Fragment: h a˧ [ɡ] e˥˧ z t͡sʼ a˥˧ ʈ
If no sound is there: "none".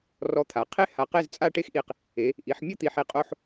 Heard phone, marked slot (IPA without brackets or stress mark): q